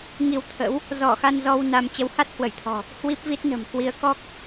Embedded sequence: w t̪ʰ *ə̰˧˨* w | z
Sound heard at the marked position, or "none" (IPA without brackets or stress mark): ə̰˧˥